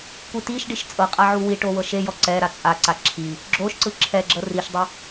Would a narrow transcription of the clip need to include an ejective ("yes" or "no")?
yes